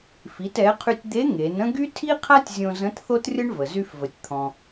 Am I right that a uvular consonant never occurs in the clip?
no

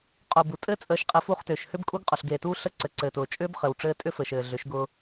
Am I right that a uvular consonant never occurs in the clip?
no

